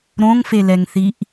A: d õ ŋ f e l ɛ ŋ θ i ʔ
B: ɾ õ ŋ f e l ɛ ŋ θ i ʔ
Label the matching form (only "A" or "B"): B